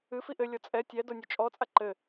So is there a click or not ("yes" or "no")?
yes